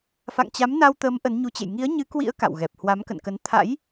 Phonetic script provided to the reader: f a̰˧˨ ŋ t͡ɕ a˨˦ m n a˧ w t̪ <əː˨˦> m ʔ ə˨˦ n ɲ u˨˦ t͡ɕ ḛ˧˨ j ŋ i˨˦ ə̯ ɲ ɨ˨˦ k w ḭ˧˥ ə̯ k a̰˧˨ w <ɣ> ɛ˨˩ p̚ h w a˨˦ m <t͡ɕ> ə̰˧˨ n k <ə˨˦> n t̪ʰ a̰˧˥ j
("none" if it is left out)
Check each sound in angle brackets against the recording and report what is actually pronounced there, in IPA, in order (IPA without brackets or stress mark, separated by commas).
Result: əː˨˦, ɣ, k, ə˨˦